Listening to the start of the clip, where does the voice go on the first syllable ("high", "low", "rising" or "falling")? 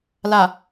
low